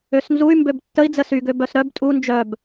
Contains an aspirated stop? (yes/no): no